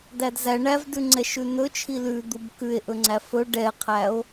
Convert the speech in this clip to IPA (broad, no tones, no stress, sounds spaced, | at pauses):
d æ d z æ ɳ æ v d ʉ ŋ͡ǀ ɛ ʃ ʉ n̪ ɵ t͡ʃʰ i l ʉ d̪ u b k ʉ e̯ ʔ ɵ ŋ͡ǀ æ f ɵ ɖ ɛ qʰ æ o̯